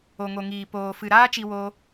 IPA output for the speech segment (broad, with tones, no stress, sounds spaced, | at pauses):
o˨ ŋ o˨ ŋ iː˨ p oː˨ f ɨ˨ ɾ aː˦ t͡ʃ i˧ w o˧